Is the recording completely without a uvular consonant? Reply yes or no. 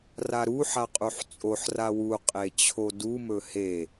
no